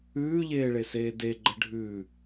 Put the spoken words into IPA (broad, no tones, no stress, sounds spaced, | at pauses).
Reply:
ʉː ʎ eː ɭ e s eː d e ɡ͡ǃ ə ɖʱ ʉ